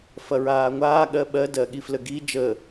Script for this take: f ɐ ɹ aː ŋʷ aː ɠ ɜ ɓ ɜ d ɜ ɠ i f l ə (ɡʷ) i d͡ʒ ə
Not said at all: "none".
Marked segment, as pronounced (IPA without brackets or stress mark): ɡ